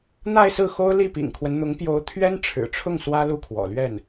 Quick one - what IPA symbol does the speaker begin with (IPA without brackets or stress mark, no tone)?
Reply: n̪